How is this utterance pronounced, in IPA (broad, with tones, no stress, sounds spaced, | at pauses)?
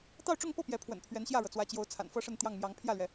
t̪ ɑ˥˧ ʊ̯ ʈ͡ʂ ʊ˥˧ ŋ p ɤ˥˩ p j ɛ˧˥ pʰ w ə̰˨˩ n pʰ ɥ ɛ˧˥ n ɕ j ä˥˩ ɻ ɤ˩ t͡s w ä˧˥ t͡ɕ j o˧˥ ʊ̯ t͡sʰ a̰˨˩ n f ɤ˥ ʂ ə˥˧ n t̪ j ɑ˥˩ ŋ m j ɑ˧˥ ŋ pʰ j ä˥˩ l ɥ ɛ˩